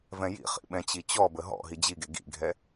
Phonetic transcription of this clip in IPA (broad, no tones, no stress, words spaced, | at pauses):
vɛ̃jḭχḭ ɓɛ̃t͡ɕit͡ɕɔbə ɦɔ̰ ɦid͡ʑiɡe ɡḭɡʱɛ